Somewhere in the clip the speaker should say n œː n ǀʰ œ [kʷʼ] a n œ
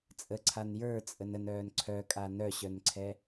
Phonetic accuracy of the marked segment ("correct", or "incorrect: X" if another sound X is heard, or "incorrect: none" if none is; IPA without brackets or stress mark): incorrect: kʼ